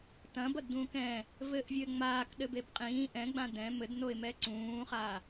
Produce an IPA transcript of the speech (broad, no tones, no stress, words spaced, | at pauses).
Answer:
tɐ̃bɐdd̪ũːk ɛ̃ | vɘʔvʲɘː ŋ͡maːkɗɘbeb qʼĩː ʔɛ̃ɡ͡bã dɛ̃ mɘdnoɪ̯mɛ ǀũːχaː